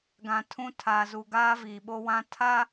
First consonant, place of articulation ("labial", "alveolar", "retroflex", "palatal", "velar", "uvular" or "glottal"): velar